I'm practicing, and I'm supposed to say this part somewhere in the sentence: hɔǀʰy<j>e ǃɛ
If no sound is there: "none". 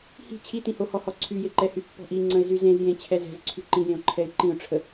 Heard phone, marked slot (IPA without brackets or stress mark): j